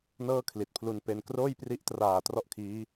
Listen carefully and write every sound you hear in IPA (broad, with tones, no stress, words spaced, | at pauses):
nɤː˥˩kʰli˨˩t̚pʰlu˧npe˧n kroː˥˩jpri˦˥ʔtraː˨˩ trɔ˥˩ʔkʰiː˦˥